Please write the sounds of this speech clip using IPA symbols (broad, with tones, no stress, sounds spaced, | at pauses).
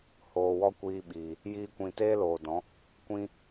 h oː˨ w ɔ˦ kʷ iː˧ ɓ iː˨ | j iː˧ kʷ ĩ˨ t eː˦ l oː˨ d ɔ̃˨˦ | kʷ ĩ˦